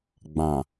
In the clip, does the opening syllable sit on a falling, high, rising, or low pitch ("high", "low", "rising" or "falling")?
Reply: low